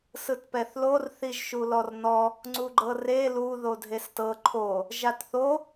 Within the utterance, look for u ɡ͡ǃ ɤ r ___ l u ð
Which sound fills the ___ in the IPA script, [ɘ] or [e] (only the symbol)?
e